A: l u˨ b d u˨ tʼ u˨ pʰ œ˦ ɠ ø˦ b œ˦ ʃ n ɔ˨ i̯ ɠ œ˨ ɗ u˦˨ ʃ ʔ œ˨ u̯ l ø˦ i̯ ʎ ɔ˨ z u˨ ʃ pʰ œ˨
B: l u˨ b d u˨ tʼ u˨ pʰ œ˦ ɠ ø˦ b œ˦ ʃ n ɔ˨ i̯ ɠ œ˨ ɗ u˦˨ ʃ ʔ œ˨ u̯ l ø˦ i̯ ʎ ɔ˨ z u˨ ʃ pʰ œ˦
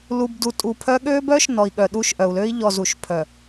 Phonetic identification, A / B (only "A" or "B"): A